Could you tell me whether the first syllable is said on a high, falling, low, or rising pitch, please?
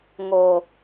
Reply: low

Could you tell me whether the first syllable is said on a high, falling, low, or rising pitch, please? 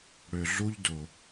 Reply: low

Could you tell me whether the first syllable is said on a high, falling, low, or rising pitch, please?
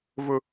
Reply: high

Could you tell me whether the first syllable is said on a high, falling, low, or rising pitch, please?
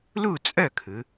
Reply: falling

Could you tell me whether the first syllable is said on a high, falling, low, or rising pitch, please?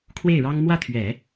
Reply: falling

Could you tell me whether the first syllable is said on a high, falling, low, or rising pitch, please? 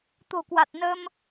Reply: low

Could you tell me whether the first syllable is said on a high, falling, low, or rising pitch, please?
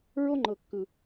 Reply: high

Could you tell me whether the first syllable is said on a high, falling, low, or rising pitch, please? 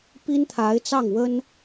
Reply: high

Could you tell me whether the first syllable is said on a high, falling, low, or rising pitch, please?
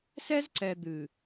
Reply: high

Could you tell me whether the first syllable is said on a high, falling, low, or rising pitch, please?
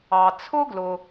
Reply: low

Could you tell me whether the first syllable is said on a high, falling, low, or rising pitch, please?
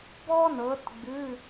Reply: high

